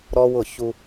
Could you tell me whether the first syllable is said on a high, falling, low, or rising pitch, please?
high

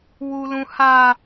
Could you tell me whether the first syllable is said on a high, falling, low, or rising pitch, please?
high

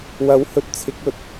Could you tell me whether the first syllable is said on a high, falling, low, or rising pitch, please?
rising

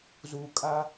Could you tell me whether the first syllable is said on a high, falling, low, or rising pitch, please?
low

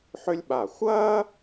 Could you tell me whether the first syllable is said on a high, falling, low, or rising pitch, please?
high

